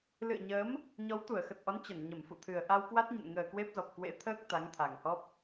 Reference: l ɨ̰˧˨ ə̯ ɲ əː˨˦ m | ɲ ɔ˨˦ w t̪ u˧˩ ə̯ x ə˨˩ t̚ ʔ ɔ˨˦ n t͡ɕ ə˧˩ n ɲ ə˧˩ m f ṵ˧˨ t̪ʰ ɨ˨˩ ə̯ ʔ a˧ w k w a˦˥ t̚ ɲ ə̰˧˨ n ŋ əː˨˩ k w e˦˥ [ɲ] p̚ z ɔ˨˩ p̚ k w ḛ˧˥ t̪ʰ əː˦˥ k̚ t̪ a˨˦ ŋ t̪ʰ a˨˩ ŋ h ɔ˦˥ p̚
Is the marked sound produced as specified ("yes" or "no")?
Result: no